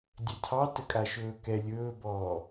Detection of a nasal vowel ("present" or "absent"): absent